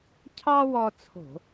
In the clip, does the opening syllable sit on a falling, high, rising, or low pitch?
high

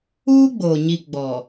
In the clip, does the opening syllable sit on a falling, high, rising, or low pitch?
high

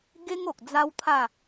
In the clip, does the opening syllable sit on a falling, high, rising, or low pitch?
high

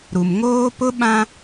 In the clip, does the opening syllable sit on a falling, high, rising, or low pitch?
low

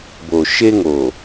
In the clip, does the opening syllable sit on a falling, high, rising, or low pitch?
low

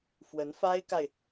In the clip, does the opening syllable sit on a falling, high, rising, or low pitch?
rising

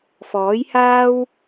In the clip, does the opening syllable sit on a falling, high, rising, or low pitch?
rising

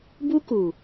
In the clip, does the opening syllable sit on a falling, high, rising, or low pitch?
high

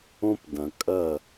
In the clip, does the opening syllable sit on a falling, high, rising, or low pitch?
high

